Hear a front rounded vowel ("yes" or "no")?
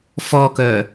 yes